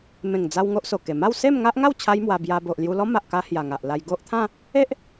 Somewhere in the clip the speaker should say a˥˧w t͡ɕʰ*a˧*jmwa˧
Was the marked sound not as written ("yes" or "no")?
yes